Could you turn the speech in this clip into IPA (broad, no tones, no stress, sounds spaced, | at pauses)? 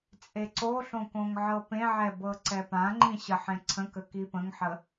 t͡sʼ e ǀ o ɬ õ k õ ŋ ʕ ɤ p ẽ ʕ ɛ b ɤ ǀ ɛ p ã ŋ͡ǃ ĩ ɕ ə ħ ẽ ǀʰ ə̃ k ə k i p ə̃ ŋ ħ ə